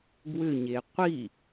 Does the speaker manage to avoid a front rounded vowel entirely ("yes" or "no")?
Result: no